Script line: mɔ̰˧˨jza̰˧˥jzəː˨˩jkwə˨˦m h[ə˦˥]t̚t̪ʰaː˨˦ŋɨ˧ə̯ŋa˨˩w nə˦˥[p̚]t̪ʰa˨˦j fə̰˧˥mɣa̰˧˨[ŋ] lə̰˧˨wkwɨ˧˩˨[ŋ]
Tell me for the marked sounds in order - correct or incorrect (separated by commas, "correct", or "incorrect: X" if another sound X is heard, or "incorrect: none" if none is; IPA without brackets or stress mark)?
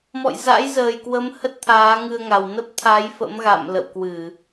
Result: correct, correct, incorrect: m, incorrect: none